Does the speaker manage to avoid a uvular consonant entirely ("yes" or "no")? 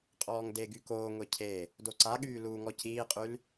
no